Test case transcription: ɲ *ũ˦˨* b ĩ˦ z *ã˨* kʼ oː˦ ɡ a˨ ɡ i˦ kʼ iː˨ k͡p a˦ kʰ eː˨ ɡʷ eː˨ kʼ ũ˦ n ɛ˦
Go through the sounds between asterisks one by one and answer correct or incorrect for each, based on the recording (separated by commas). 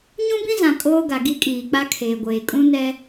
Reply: incorrect, correct